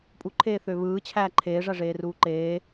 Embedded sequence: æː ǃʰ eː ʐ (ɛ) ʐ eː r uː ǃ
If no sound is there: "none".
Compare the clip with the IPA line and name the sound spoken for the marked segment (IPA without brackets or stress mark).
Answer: æ